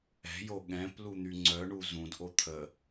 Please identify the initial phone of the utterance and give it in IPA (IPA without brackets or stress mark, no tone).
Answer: ɛ̤